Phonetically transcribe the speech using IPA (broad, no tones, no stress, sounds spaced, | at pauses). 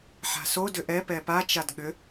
ħ a̤ s o d ʏ ʔ ɛ p ɛ p a t͡ʃ a d ɠ ʏ